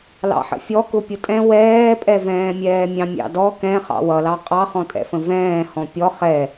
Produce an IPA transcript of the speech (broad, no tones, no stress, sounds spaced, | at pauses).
l ɑ̰ ħ ə̰ fʲ ɔ k ʊ pʲ ʊ tʼ ɛ̃ w ɛː pʼ ɛ v ɛ̃ː mʲ ɛː mʲ ɑ̃ mʲ ɑ̰ d ɔ k ɛ̃ χ ɑ̰ w ʌ l ɑ qʼ ɑ χ ɔ̃ tʼ ɛ̰ f ə̃ v ɛ̃ː h ɔ̃ pʲ ɔ χ ɛ